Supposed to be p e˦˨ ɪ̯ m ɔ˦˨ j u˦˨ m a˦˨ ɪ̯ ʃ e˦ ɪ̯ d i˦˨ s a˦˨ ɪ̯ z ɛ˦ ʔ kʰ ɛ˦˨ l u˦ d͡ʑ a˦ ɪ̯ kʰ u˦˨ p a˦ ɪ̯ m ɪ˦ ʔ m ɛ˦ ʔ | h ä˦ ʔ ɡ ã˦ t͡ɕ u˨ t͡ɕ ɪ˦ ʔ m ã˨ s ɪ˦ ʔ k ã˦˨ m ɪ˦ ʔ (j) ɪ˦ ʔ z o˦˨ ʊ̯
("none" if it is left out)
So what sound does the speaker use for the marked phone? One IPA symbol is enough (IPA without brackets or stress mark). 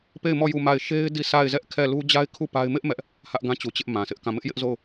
j